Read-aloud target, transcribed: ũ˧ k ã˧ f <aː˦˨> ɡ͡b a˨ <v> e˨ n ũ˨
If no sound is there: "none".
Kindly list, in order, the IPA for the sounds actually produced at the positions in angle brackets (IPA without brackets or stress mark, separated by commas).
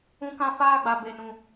aː˦˨, b